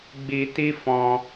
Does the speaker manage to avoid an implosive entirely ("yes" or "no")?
yes